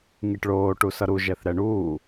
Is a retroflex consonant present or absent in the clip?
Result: present